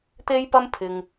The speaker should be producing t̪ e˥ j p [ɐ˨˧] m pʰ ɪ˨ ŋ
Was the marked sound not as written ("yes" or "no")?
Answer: yes